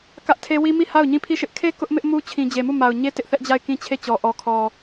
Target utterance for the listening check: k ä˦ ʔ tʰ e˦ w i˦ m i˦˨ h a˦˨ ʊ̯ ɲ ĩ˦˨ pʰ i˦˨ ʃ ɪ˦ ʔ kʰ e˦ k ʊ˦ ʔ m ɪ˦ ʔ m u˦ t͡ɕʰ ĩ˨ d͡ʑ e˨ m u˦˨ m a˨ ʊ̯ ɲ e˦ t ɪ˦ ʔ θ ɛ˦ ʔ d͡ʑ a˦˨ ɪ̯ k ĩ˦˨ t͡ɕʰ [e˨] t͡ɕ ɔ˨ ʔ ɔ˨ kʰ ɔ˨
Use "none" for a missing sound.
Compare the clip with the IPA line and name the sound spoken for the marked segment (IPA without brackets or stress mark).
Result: e˦˨